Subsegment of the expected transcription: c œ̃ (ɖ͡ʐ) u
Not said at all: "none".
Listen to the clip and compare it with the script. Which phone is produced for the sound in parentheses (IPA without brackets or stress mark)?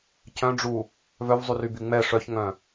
ɖ͡ʐ